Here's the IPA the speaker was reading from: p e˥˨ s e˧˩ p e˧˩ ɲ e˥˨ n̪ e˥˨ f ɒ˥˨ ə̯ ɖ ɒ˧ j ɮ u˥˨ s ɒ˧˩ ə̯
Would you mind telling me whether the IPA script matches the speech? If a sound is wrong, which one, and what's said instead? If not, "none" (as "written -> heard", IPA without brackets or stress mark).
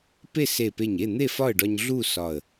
j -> ɲ